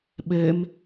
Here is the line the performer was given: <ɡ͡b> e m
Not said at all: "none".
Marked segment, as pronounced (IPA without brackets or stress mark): ɓ